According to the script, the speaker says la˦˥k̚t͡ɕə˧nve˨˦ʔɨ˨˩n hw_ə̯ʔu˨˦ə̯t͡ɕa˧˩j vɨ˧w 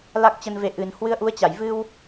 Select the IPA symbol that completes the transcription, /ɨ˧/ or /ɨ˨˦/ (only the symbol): ɨ˨˦